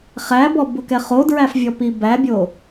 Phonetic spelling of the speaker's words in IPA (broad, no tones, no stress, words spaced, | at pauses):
χæbɔ bʊkɛχodɹæf vʲɔpibæbʲo